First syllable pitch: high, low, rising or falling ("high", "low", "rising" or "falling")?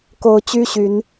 rising